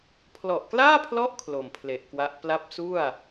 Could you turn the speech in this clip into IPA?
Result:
pʰ l ɔ˨˩ ʔ k l aː˥˩ pʰ l ɔ˦˥ ʔ kʰ l o˨˩ m pʰ l e˨˩ ʔ k w a˦˥ ʔ p l a˦˥ p̚ s u˥˩ a̯

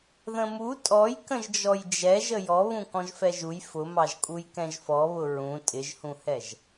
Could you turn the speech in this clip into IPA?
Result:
ð ə̃ m u tʼ ɔ j k ə̃ ʒ d͡ʒ ɔ j d͡ʒ ɛ ʒ ə j ɔ β ũ k ɔ̃ ʒ f ɛ ʒ u j f ʊ m ɑ ʒ kʼ u j k ɛ̃ ʒ f ɔ β ʊ ɹ ũ tʼ ɪ ʒ h ũ h ɛ ʒ

